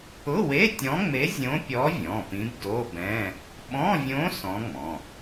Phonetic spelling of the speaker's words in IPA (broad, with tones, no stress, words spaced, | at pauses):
ʊ˧˥˧we˧˥˧tʲɔ̃˧˥ŋ͡me˧˥ zʲõ˧˥pʲɔ˧˥vʲɔ̃˩˧˩ pĩ˧˥bdo˧˥˧bɛ̃˧˥˧ | ɓɔ̃˧˥˧vʲõ˧˥ sɔ̃˧˥ŋ͡mɔ̃˩˧˩